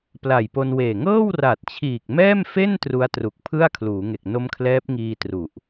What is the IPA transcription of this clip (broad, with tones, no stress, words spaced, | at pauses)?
pla˨˩jpo˧nweː˨˩ ŋɤː˥˩wra˨˩t̚t͡ɕʰiː˨˩k̚ mɛː˥˩mfe˥˩n tru˦˥a̯ tru˨˩k̚pʰɯ˥˩a̯kʰluː˩˦ŋe˨˩k̚ no˦˥mkʰlɛː˦˥p̚ ŋiː˧tru˨˩ʔ